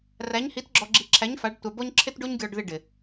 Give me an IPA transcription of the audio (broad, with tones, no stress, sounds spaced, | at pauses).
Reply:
r æ˧˥ ɲ h i˧˥ t ɡ͡ǁ ɔ˧ ɡ͡ǁ i˧ ǁʰ æ˧˥ ɲ f a˧˥ ɖ tʷ a˧ b ɔ˥ ɲ ǁʰ ɪ˥ t ɖ o˥ ɲ ɡʲ ɔ˧ ɖ ð ɪ˧ ɖ ɪ˩